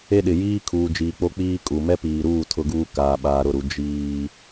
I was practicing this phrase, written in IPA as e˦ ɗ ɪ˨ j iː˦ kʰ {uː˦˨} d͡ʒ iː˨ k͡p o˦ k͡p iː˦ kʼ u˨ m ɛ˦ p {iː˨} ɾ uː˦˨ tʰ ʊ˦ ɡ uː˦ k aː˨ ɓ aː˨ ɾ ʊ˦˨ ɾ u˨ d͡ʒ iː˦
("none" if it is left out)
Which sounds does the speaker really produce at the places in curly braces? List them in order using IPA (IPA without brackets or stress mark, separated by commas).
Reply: uː˨, iː˨